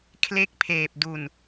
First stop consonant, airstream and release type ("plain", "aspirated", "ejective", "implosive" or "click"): aspirated